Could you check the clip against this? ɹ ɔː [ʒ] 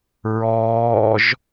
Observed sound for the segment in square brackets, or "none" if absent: ʒ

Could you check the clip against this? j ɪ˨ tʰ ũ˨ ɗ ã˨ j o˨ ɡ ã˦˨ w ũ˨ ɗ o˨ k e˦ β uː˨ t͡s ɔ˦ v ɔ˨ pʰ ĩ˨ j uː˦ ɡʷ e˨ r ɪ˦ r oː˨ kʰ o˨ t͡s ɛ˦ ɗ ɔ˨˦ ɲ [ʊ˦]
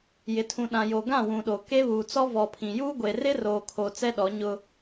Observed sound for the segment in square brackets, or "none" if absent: ʊ˦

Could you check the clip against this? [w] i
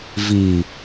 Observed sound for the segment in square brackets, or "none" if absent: v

